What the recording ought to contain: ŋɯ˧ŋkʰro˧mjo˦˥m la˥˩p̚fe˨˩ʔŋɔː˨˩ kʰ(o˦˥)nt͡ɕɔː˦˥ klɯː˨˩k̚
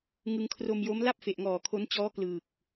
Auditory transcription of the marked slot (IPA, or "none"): o˦˥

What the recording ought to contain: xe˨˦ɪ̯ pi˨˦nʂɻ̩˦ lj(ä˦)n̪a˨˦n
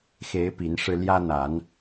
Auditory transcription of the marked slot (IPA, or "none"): ä˦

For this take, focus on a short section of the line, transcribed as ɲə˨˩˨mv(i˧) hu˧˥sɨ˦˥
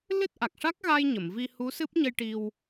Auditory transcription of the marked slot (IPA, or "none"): i˧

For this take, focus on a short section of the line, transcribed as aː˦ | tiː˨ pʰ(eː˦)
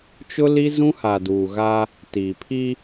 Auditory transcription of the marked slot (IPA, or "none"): iː˦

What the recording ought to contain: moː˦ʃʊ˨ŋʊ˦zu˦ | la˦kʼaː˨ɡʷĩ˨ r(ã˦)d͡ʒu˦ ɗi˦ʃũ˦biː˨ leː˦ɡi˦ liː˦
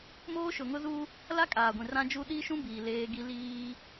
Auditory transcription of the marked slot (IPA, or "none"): ã˦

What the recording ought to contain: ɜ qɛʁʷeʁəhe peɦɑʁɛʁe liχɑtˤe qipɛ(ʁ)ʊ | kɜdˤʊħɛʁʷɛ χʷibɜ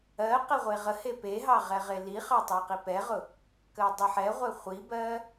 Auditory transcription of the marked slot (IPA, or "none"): ʁ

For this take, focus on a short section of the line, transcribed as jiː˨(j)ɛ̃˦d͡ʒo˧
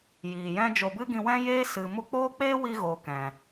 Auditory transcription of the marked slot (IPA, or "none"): j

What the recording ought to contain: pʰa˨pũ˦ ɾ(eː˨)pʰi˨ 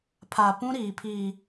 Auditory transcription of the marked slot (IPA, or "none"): iː˨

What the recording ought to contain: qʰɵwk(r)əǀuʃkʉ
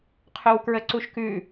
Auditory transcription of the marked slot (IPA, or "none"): ɹ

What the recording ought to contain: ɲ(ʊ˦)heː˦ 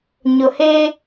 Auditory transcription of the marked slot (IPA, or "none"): ʊ˨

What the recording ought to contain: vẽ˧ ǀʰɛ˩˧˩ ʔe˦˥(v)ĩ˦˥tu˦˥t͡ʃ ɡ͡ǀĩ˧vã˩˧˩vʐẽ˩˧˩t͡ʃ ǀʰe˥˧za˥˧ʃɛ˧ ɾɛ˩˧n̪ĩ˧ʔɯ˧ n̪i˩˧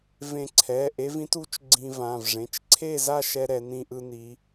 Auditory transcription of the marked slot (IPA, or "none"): v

